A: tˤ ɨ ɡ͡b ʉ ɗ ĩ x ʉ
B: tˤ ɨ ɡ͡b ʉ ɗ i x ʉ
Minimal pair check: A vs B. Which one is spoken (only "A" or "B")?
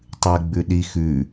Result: B